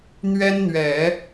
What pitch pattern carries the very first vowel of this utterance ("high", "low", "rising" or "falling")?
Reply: high